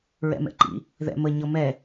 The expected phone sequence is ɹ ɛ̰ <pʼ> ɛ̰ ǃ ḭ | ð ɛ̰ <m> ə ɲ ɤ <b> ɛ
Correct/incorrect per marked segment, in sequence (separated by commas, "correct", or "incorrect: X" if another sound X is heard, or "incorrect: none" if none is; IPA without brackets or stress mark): incorrect: m, correct, incorrect: m